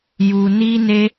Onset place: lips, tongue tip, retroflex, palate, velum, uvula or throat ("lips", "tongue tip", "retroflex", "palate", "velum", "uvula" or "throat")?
palate